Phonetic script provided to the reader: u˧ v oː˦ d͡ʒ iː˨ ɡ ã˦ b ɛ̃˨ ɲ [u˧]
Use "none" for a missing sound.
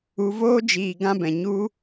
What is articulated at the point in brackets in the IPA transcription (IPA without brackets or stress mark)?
u˧